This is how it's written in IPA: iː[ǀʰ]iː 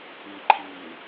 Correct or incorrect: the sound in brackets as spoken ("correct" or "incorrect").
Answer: incorrect